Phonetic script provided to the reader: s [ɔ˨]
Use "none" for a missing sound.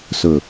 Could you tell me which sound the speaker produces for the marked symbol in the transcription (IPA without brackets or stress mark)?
ʊ˨